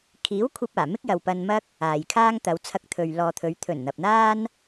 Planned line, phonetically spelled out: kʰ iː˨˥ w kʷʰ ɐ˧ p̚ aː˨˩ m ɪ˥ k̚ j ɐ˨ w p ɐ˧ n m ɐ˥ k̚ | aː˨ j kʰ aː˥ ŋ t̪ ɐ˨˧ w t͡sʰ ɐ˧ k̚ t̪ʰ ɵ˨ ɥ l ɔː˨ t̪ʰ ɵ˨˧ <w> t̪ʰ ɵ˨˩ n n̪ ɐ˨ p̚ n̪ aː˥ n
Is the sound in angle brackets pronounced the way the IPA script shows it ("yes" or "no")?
no